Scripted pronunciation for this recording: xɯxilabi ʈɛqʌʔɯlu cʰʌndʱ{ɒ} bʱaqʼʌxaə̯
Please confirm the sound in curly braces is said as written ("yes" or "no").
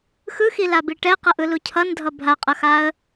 no